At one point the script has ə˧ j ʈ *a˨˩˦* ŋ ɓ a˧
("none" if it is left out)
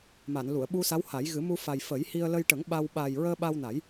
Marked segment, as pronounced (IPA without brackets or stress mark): ə˨˩˦